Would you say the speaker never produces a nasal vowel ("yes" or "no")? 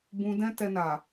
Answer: no